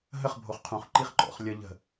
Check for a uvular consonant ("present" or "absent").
present